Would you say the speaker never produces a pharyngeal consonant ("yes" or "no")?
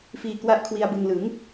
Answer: yes